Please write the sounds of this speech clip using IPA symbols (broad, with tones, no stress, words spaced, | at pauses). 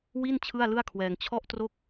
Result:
wi˥˩n t͡ɕʰɯ˥˩a̯lɯ˥˩a̯kʰwɛː˧ŋ t͡ɕʰɔ˥˩ʔtro˥˩k̚